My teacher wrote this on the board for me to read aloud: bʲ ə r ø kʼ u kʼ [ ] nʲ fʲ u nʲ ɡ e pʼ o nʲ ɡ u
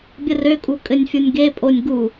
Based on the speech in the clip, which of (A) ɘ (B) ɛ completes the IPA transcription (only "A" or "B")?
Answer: A